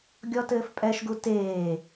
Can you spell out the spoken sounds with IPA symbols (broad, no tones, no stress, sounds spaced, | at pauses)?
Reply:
ɡʲ ɔ t ɘː f pʼ ɛ ʃ ɡ u t eː